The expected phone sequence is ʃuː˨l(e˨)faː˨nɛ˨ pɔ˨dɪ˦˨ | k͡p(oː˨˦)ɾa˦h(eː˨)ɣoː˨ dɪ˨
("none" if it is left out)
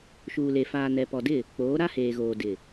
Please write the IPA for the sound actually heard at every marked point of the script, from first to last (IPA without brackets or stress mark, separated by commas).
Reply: e˨, oː˨˦, eː˨